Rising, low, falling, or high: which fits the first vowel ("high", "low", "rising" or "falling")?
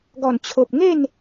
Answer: low